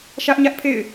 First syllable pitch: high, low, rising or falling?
high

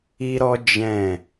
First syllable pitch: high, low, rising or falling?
high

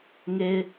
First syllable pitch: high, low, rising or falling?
low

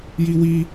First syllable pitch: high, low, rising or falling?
high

